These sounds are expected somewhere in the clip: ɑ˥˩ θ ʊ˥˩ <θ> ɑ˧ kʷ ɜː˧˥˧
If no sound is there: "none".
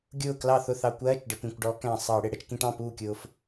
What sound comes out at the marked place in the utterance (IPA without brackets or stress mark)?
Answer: θ